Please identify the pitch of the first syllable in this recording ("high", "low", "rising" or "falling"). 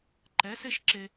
rising